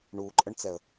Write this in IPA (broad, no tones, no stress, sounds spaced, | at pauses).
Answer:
ɳ u ǃʼ ə ɳ t͡s ɛ ə̯